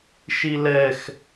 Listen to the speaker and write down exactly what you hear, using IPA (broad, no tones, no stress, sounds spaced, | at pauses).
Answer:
ʃ i l ɛ x